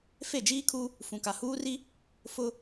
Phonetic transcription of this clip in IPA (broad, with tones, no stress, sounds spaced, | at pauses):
f e˦˨ d͡ʒ iː˦ kʰ u˦ | f ũ˨ k a˨ h uː˦ r i˦ | f ʊ˦